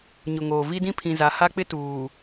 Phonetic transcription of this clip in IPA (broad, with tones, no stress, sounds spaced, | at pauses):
ɲ ʊ˨ ŋ oː˨ v i˦ d ĩ˦ pʰ ĩ˨ z a˨˦ h a˦ k͡p ɪ˦ t uː˨